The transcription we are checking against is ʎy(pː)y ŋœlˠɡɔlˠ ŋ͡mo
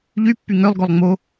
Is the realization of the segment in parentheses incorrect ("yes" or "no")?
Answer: no